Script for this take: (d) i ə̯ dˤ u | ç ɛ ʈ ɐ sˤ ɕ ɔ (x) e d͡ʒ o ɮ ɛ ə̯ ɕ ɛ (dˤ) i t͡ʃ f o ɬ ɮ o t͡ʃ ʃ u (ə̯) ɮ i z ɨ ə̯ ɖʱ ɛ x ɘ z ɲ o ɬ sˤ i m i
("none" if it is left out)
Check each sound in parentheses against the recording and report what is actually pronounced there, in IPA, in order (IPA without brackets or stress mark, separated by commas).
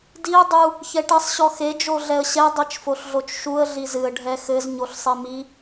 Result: d, x, dˤ, ə̯